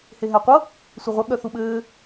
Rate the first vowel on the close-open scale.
mid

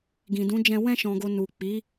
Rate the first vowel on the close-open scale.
close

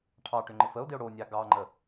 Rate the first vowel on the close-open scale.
open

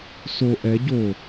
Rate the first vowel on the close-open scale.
mid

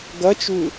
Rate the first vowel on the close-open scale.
open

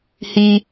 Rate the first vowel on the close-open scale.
close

